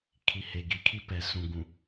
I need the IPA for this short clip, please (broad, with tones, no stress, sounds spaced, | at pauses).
kʰ i˨ h e˨ ɡ i˨ kʰ i˦ p ɛ˨ s ũ˨ ɡ ũ˨